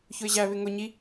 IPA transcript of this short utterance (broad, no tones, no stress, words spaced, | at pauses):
çʊɪ̯ʑæβɪ ŋʊ ɲi